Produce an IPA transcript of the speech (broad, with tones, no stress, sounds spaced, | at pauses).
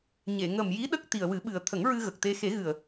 ɲ e˨˩˨ ŋ ə˨˩ m j i˧˥ ɗ ə˦˥ k̚ t̪ i˨˩ ə̯ w ɨ˨˩˦ ɓ ɨ˨˩ ə̯ t̪ʰ ə˨˩˦ ŋ ɹ ɨ˧ ɣ ə˨˩ k̚ t̪ e˧ x e˨˩˦ ɣ ɨ˨˩ ə̯